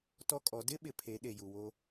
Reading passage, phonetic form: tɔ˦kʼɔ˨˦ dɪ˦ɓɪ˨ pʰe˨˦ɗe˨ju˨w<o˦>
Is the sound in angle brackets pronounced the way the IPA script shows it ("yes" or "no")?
yes